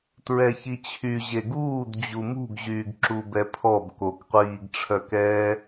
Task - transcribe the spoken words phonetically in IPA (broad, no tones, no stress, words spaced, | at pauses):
tɹɛçit͡ɕʰy ʑeɡuːd d͡ʑumṳɡʑyːɡ ǁubɛpʰɔb kokqʷiːɡʈ͡ʂʰœkɛː